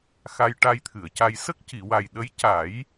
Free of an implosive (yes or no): no